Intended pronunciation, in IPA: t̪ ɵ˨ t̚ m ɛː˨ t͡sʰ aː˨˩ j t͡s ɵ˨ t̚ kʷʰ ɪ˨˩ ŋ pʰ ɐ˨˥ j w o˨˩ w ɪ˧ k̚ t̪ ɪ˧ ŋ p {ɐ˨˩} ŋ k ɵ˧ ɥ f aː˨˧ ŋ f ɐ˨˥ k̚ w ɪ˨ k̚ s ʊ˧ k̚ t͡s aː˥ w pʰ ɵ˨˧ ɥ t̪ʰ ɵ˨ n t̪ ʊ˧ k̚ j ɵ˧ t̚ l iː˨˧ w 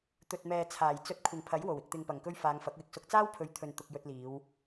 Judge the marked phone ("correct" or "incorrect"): correct